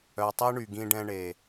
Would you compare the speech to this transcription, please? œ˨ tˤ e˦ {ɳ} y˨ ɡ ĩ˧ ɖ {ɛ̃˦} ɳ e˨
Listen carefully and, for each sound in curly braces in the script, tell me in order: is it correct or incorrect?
correct, incorrect: ɛ̃˧

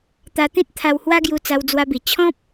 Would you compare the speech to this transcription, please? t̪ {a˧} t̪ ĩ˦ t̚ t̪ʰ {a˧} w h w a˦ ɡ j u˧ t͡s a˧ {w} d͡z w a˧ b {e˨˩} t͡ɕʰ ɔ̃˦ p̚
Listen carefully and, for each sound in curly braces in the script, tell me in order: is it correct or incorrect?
correct, correct, correct, incorrect: i˨˩

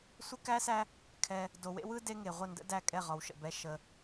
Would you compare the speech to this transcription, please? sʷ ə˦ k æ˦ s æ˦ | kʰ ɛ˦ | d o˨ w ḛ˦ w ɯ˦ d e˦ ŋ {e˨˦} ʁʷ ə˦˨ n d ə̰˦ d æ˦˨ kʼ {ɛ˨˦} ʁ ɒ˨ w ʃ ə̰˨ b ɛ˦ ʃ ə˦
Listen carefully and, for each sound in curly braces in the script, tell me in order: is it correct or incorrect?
incorrect: e˨, incorrect: ɛ˦˨

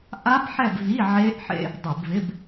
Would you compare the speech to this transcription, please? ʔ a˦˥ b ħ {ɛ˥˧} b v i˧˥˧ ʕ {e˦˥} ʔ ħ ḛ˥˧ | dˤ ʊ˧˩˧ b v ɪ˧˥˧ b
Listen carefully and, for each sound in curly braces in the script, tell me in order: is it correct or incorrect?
correct, correct

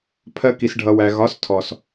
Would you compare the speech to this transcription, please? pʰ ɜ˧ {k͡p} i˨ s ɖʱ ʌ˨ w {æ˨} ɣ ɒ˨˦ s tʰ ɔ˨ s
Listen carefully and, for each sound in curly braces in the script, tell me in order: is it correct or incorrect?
incorrect: k, correct

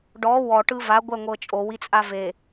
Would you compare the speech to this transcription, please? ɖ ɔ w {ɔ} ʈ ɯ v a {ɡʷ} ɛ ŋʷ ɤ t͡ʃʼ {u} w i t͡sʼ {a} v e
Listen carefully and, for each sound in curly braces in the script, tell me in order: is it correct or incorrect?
correct, correct, incorrect: o, correct

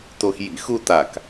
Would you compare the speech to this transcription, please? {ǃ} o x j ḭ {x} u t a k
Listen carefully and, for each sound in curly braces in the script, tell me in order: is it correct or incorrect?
incorrect: t, correct

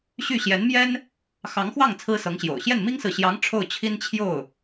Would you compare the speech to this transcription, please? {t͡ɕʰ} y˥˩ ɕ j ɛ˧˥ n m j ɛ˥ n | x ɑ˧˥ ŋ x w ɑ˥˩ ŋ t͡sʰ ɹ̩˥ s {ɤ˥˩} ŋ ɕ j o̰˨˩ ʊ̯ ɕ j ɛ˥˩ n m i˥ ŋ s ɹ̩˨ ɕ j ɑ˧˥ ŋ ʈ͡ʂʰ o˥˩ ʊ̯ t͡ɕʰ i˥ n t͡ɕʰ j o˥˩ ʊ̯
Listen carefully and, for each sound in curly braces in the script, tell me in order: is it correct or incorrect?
incorrect: ɕ, incorrect: ɤ˧˥

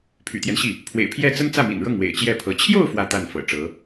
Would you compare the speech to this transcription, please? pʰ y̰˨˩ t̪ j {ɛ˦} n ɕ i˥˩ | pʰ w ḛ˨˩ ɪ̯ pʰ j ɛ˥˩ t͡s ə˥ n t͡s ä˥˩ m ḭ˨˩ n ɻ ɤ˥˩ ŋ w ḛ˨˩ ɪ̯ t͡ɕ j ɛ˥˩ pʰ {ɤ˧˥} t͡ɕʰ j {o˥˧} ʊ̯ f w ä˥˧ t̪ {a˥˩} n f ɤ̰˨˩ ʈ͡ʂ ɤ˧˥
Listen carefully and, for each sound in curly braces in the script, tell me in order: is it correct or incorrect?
correct, correct, correct, correct

